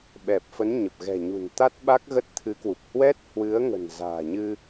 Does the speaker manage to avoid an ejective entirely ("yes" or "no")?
yes